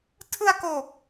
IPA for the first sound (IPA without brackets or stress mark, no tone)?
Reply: tʰ